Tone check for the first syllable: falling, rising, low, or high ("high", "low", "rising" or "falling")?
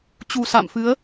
low